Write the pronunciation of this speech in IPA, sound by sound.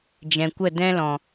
d͡ʒ ɛ̃˨ kʷ ə˦˨ d ɛ̃˦ l ɔ̃˨

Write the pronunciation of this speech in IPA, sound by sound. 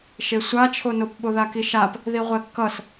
ʃ e sʷ a t͡ʃʰ o n o p ɓ o ð a k i ʃ a p | ð i ʁʷ ɛ kː ʌ s

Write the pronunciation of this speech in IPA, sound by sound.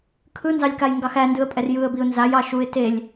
kʰ ɯ n z ɑ lʲ k a j ŋ ɡ ɑ x æ n d ɯ ə̯ pʼ ɛ r j ɯ ə̯ b i ʊ̯ n z a j ɑ ʃ u ɪ̯ t e lʲ

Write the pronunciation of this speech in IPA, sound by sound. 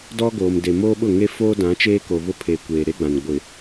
d ɔ˦ ɡ oː˨ m d e˨ m oː˦ ɓ ʊ˦˨ ŋ e˦ f oː˦ d ã˨˦ t͡ʃ eː˦ k o˨ β ʊ˦ pʰ e˨ kʷ eː˨ ɾ e˦ ɡ͡b ã˨ n ɡʷ ɪ˨

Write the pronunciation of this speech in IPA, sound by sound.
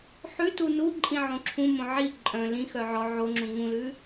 ħ ʉ t u n u ǃʼ ĩ ʕ õ ǁʰ ũ m õ ʕ i ǃʼ œ̃ l ĩ x œ ʕ ɔ ʕ o ŋ͡ǁ ũ ŋ ũ l ʉ

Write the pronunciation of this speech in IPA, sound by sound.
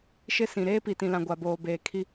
ʃ ɪ˦ s ĩ˨ ɾ eː˦ p i˨ t ĩ˨ l ã˨ ɡʷ a˨ b oː˨ b eː˨ kʰ i˦

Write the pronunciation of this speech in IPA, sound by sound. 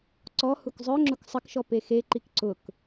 ǀ ɔ h u k zˤ œ ŋ͡ǁ ʊ k sˤ ə k ʃ ɔ p e x e ǃ i k ǀ ʊ k

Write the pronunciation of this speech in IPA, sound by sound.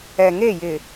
ɛ˨ ŋ e˦˨ j ɪ˨

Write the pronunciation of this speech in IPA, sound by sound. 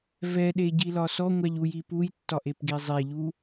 v ɛ ɗ e ɟ i l ɒ s ɔ ŋʷ æ ʎ u j i p u j tː ɒ ʔ e p ɡ e zˤ e ʎ u

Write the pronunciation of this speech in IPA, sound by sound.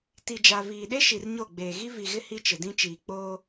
t i˨ d͡ʒ a˨ v iː˨ ɗ e˦ ʃ i˨ r ɲ o˦˨ ɡ͡b eː˨ ɣ i˦ v i˨ ɣ ɪ˦ h i˦ t͡ʃ ɪ˨ d ĩ˦ t͡ʃ iː˨ k͡p oː˦

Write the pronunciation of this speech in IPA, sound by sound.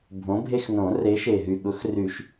bʱ õ˨˥ bʱ e˦ x n õ˨˩˦ r e˨˥ ʃ e˨˩ ɦ y˨˩ ɠ ʊ˨˥ x r y˨˩˦ ʃ

